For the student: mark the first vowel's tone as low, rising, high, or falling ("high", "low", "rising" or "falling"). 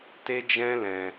high